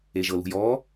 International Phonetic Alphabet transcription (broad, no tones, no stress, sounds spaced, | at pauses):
e ʒ ɤ l ṳ j ɔː